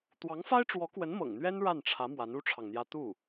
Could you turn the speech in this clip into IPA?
t̪wɑ˧˥ŋfa˥ɪ̯ʈ͡ʂwɔ˧˥kwə˧˥n mɤ̰˨˩ŋn̪ɥɛ˥n ɻa˥˩nʈ͡ʂʰä˧˥ mwa˧˥nu˥ʈ͡ʂʰɑ˨ŋn̪jä˥ t̪u˥˩

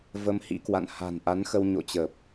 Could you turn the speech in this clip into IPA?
və˧mhḭ˧˥kwa̰˧˨n ha̤˨˩nʔa˨˦nxə˧w ɲo̰˧˨t͡ɕəː˨˩p̚

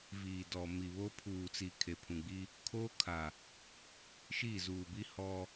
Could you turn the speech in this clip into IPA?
viː˨dɔ˨ mi˨ βoː˦ pʰuː˨t͡si˨ kʰe˨pʰũ˨ɡ͡bi˦ | kʰoː˦kʰa˨ | ʃiː˦˨zuː˨bi˦ hɔ˦

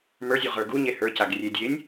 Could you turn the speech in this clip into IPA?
mə˞zʲu ʁə˞ɡuɲe hə˞caɡ rʲe dʲenʲ

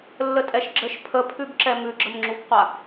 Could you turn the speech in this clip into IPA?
lːətʼɛʃɡ͡ǁəʃ pʰəpʰʉbǁɛ mʉɡ͡ǁəmŋ͡ǁubqʷa

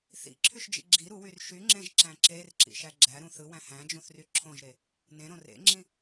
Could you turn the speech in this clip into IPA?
θḭǁʰyʃd͡ʒḭ ɡ͡ǁi ɾuwyr ʃyŋ͡ǁẽʒǁæ̃ ǁerǁḭʃæ ɡ͡ǁæɾũ θɯwæ̃ hæ̃d͡ʒũθry ǁʰõʒɾe | nẽɾõ rḛŋ͡ǁĩ

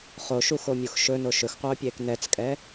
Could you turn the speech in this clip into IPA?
χoʃuxomʲux ʃɵno ʃɵxqʷœːpʲeːk nɛt͡skʼɛ

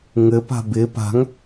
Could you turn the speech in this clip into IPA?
ŋɘpa̤ bɪ pa̤ŋ

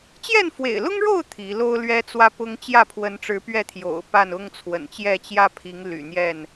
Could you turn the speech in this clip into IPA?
t͡ɕjɛ˥˨nfwḛ˨˩ɪ̯lʊ˦ŋɻo˥˨ʊ̯ t̪ʰi˨˦ lo˦ʊ̯ lɥɛ˦ t͡swä˦pʊ˦ŋ t͡ɕjä˥˨pʰwə˨˦nʈ͡ʂɻ̩˨˦ pɥɛ˥˨t̪ʰjo̰˨˩ʊ̯ pa˥˨nʊ˦ŋt͡sʰwə̰˨˩nt͡ɕjɛ˥˨ t͡ɕjä˦pʰi˨˦ŋly̰˨˩n̪jɛ˥˨n

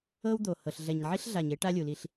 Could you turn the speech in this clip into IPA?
ɤ˦wd̪o˨hɤ˨ɬ ɮɛ˨ɲʕi˦ɬ ɮa˨ɲe˦ ʈa˦lʲu˨li˦ɬ

